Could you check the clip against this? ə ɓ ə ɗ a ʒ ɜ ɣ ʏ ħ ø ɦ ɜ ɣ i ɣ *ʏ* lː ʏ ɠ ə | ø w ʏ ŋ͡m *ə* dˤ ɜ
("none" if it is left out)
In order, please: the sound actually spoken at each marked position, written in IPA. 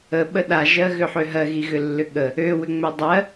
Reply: ʏ, ø

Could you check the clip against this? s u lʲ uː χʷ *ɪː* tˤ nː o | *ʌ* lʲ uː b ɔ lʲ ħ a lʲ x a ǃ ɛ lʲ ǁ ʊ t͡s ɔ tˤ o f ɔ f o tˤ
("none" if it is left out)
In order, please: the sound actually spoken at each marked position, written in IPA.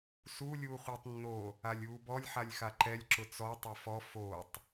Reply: ɪː, a

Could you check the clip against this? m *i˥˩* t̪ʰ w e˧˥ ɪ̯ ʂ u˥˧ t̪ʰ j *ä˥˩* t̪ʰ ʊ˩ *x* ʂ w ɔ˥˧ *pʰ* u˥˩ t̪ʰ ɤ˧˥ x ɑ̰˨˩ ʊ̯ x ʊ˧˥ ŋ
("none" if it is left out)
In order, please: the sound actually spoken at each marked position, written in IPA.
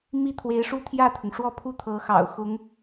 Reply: i˥˩, ä˥˩, ŋ, pʰ

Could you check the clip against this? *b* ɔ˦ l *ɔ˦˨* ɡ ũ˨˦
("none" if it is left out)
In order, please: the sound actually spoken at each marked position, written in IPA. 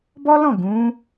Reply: b, ɔ̃˦˨

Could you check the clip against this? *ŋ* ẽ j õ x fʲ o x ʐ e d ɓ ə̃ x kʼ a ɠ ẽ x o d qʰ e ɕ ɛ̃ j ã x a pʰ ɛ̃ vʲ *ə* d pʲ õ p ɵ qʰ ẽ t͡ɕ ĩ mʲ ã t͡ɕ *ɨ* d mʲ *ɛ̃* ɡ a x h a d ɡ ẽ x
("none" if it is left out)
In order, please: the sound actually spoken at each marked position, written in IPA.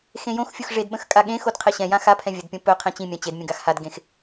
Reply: x, ə, e, ə̃

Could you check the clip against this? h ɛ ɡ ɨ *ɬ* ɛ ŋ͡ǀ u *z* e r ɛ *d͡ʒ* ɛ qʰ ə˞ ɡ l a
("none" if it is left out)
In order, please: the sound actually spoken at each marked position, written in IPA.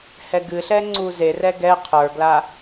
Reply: ɬ, z, ɡ

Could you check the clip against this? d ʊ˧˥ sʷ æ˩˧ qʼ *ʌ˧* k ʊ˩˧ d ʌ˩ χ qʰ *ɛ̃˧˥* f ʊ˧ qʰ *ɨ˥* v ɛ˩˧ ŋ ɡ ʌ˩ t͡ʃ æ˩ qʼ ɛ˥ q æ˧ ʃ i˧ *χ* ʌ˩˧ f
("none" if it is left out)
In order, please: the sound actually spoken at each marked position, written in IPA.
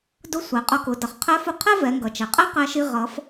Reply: ʌ˧, ɛ˧˥, ɛ˥, ʁ

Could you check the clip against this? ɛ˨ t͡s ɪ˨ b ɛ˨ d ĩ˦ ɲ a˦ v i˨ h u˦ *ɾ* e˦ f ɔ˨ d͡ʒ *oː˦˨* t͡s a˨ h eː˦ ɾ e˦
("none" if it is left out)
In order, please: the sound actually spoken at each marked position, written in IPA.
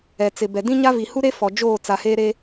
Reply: ɾ, oː˦˨

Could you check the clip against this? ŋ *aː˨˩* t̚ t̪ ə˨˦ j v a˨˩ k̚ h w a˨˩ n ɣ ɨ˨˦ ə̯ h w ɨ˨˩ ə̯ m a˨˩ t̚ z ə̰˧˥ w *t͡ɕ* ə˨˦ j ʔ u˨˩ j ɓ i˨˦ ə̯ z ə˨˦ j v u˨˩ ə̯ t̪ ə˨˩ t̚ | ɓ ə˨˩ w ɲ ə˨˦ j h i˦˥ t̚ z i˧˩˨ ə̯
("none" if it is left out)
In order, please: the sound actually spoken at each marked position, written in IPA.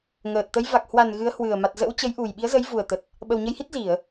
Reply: əː˨˩, t͡ɕ

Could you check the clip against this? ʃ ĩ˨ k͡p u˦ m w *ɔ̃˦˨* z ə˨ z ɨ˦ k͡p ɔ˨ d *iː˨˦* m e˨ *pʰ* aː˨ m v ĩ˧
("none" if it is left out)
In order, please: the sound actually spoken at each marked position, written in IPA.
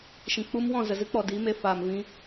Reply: ɔ̃˦˨, iː˨˦, f

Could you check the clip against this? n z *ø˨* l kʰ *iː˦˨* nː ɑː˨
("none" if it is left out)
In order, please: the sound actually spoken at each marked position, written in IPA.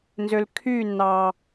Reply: ø˨, yː˦˨

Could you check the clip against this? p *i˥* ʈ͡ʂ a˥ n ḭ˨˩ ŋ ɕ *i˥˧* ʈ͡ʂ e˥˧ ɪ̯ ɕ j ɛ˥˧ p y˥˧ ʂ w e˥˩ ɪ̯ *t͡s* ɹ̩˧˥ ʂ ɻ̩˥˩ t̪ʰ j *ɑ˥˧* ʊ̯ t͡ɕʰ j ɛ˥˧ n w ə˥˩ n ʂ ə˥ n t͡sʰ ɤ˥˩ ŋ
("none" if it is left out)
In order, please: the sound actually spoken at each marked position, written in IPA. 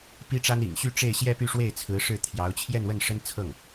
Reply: i˥, y˥˧, t͡sʰ, ɑ˧˥

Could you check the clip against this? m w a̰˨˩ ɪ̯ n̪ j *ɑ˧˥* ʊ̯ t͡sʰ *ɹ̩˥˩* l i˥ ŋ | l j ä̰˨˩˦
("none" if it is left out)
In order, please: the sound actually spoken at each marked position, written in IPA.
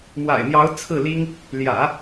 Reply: ɑ˧˥, ɹ̩˥˩

